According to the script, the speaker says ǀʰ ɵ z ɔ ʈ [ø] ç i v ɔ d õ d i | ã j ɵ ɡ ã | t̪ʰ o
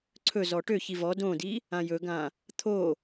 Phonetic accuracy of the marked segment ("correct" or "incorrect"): correct